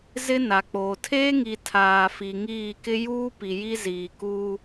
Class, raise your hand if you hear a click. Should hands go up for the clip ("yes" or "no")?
no